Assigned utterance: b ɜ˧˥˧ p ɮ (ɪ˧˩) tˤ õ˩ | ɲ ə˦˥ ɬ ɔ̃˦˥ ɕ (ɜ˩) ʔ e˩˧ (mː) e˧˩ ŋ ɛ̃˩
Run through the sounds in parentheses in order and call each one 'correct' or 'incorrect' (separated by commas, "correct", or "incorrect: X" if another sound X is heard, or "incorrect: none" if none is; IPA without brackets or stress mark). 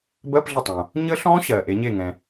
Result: incorrect: ə˧˩, correct, incorrect: ɲ